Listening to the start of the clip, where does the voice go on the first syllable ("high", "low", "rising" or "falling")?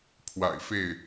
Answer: low